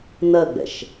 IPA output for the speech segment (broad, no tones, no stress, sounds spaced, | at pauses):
n ɜ ɡ͡b ɛ̰ ʃ